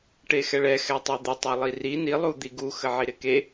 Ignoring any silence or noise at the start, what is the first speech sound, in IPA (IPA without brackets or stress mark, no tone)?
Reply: ʈ